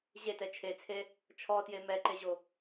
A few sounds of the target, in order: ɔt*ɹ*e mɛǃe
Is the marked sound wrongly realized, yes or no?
yes